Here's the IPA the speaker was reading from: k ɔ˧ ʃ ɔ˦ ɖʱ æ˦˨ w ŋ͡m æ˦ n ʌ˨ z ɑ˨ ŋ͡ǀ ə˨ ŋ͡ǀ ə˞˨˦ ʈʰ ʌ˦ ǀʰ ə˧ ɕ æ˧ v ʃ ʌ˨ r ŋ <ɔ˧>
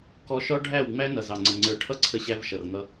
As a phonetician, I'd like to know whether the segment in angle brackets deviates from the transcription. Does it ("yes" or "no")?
yes